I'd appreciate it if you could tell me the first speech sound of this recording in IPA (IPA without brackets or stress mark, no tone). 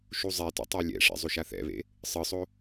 ʃ